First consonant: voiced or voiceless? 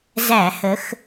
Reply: voiced